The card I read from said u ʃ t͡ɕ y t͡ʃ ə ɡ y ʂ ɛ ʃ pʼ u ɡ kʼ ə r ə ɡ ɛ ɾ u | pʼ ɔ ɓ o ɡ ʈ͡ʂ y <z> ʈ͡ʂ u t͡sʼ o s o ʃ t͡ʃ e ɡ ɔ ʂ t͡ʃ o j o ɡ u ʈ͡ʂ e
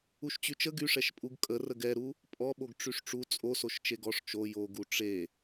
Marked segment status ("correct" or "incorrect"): incorrect